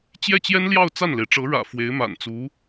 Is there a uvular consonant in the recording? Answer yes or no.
no